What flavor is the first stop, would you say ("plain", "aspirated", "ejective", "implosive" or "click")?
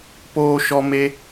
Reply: plain